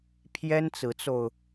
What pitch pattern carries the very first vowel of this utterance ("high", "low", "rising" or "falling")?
high